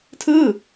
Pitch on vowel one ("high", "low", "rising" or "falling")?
falling